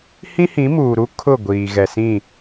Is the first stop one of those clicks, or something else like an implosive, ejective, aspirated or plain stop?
aspirated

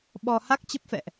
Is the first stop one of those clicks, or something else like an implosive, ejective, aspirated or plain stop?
implosive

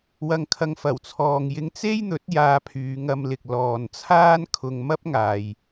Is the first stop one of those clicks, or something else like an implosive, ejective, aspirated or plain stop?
aspirated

